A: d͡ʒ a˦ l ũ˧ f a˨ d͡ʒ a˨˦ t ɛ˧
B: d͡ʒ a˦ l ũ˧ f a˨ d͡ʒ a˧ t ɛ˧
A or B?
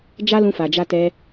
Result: B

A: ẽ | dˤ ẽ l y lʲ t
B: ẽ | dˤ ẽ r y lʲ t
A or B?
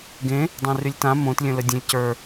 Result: B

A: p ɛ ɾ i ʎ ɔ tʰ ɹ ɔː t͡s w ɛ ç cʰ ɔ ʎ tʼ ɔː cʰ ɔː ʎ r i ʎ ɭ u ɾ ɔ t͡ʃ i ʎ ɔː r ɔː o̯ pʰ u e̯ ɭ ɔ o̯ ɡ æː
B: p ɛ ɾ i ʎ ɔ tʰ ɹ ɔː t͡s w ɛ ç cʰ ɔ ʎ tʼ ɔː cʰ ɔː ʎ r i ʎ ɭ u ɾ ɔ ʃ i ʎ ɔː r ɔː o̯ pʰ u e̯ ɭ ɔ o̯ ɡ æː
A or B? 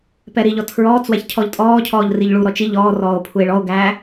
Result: A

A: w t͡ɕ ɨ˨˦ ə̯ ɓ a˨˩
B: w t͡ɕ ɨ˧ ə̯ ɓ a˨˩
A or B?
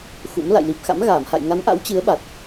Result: A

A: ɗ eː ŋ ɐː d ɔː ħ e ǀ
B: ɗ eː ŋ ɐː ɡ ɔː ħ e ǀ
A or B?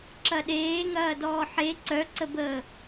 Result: A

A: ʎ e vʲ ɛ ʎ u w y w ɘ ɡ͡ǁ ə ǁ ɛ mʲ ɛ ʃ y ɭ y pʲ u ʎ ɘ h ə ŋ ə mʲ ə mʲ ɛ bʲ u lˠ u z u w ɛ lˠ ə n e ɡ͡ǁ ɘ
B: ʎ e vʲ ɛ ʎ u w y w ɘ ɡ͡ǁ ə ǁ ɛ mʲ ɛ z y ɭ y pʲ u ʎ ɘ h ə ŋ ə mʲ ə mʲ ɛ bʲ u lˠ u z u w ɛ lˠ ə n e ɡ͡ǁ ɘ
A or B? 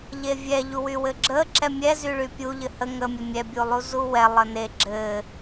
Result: B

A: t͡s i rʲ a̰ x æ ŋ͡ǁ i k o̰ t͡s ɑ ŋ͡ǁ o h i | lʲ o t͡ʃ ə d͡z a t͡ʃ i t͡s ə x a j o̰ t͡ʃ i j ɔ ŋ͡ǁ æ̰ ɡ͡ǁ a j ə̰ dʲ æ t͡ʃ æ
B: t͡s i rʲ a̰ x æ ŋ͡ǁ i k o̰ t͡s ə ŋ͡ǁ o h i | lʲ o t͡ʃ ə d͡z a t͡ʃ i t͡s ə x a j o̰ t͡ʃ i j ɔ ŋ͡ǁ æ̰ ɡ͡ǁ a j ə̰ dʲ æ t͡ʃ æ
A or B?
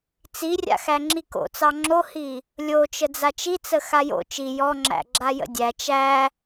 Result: A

